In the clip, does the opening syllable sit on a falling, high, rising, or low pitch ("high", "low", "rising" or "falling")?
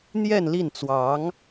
falling